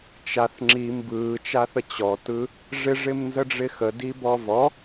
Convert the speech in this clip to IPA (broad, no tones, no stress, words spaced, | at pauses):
t͡ʃaθ ŋ͡ǁi mbɯːt͡ʃaθə t͡ɕɔtɯ | ʐɪʐɪmnzəɖ͡ʐɪ xədibɔ vɔ